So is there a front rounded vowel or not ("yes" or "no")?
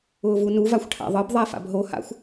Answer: no